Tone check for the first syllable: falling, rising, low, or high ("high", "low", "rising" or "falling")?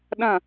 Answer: falling